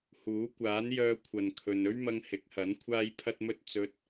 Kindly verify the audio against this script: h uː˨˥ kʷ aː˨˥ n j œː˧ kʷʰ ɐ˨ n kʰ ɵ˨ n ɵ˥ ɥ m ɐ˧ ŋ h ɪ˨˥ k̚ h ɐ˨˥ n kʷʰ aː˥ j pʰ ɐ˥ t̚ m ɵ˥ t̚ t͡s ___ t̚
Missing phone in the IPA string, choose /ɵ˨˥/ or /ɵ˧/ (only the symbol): ɵ˧